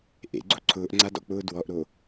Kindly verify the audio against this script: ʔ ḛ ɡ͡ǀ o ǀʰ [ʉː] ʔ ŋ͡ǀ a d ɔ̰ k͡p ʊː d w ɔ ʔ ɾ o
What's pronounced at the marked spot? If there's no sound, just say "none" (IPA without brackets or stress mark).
ʊː